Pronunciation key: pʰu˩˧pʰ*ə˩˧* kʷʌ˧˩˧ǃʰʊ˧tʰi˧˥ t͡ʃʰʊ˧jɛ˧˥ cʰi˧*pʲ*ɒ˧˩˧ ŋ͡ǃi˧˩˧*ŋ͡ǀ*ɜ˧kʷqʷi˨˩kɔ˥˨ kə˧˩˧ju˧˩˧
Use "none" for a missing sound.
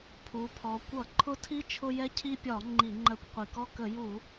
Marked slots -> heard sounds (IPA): ɔ˩˧, pʲ, ŋ͡ǃ

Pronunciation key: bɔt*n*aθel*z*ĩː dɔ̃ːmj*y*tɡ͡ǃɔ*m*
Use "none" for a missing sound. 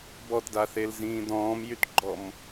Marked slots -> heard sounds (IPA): d, z, y, m

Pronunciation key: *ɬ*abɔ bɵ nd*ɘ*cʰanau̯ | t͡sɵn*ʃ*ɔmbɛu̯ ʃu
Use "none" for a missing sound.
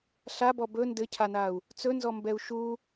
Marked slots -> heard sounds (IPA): ɬ, ɘ, z

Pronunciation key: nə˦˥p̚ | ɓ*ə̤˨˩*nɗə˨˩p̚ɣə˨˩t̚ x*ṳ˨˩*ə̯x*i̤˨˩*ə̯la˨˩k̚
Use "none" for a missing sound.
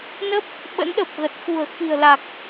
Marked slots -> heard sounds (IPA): ə̰˧˥, ṳ˨˩, i̤˨˩

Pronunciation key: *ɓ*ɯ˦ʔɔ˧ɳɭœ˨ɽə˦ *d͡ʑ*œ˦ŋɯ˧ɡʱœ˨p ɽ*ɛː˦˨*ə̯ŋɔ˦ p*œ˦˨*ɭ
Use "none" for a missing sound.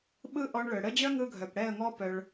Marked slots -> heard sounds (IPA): ɓ, d͡ʑ, ɛ˦˨, œ˧

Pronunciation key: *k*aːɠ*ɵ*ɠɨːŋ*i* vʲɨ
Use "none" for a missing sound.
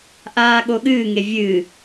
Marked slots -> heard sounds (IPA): ʔ, o, e

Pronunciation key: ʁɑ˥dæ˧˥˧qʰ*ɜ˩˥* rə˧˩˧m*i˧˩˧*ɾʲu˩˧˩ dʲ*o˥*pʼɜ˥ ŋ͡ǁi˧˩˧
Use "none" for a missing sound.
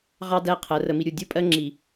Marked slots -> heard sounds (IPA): ɜ˩˥, i˧, u˥

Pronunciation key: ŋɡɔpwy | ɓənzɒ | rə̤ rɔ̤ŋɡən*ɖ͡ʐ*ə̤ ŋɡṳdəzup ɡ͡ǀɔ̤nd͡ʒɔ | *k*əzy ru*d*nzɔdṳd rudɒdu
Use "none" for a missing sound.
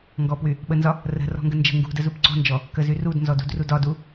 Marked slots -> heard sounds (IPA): d͡ʒ, k, d

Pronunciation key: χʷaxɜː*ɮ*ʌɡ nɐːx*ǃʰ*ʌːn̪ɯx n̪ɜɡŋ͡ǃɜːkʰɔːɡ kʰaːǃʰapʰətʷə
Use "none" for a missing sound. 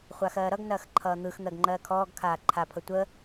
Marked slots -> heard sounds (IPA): ɾ, ǃʰ

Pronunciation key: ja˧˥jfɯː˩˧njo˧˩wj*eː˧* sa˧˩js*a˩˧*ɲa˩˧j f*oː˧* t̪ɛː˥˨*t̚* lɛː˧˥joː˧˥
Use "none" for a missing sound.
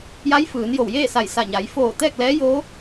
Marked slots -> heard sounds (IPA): eː˥˨, a˧˩, oː˧˩, k̚

